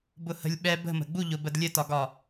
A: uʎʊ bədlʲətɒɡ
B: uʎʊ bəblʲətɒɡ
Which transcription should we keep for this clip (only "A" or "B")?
A